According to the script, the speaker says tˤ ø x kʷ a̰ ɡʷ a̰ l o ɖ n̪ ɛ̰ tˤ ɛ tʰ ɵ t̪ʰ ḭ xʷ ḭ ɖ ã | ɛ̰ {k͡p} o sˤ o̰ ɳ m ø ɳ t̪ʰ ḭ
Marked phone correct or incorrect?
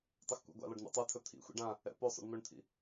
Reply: incorrect